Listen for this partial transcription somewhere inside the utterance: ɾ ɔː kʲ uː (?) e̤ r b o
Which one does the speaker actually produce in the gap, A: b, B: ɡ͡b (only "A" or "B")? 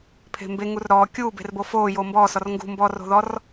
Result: A